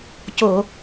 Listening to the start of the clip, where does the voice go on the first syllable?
low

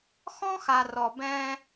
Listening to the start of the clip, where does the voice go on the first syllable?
high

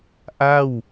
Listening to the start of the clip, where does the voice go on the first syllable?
falling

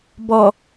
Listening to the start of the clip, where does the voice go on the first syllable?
low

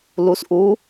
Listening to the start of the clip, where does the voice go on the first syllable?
rising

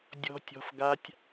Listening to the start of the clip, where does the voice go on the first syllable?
high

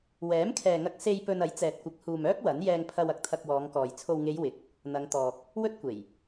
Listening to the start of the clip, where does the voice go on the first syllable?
rising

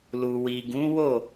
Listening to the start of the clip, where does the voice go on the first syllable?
low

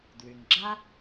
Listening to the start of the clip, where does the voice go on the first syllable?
low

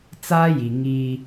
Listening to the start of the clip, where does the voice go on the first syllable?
high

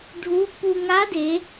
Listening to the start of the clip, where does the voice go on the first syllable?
rising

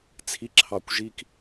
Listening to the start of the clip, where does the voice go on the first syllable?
rising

